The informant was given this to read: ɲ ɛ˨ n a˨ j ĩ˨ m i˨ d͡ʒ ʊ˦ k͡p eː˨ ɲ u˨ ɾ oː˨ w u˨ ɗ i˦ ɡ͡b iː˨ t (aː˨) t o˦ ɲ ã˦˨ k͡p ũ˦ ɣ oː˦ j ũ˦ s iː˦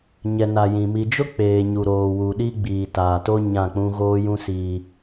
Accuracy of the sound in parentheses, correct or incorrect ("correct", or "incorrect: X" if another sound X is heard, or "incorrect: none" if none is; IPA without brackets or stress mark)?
correct